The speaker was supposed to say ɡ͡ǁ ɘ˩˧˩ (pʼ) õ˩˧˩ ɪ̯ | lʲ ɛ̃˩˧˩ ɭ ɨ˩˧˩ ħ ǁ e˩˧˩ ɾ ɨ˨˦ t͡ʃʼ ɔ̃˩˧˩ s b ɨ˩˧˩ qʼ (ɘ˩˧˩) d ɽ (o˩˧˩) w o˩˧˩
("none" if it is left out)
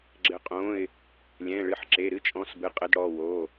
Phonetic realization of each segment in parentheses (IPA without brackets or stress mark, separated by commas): qʼ, ɘ˨˦, ɔ˩˧˩